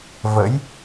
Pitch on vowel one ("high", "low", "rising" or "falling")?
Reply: rising